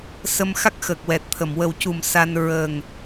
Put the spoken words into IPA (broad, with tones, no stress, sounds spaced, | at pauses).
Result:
s ə˧ m x a˦˥ k̚ x əː˨˩ k̚ w ɛ˨˩ t̚ t̪ʰ ə˨˩˨ m w ə˨˩ w c u˨˩ m s a˧ n ɹ ə˨˩ ŋ